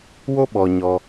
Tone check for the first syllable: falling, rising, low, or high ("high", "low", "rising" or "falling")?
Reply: high